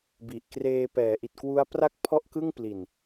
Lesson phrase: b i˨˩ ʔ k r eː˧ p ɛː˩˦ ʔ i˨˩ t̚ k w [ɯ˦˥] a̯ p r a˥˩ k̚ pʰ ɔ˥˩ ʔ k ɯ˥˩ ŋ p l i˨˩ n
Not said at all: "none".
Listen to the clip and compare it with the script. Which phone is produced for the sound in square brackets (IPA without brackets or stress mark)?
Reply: u˦˥